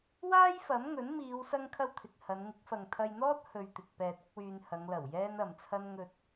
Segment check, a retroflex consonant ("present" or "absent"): absent